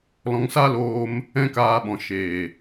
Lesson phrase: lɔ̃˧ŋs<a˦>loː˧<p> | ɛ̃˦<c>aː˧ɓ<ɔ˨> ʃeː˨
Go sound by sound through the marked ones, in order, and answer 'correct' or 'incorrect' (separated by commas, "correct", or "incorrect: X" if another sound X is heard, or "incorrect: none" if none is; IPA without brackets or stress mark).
correct, incorrect: m, incorrect: k, incorrect: ɔ̃˨